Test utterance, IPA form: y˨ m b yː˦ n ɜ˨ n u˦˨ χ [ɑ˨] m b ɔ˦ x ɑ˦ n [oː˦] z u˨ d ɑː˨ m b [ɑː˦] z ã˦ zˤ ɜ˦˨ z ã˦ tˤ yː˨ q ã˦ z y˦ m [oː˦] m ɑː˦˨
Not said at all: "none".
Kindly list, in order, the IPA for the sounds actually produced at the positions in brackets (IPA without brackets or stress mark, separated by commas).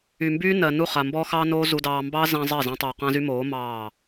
a˨, oː˦, ɑː˦, oː˨˦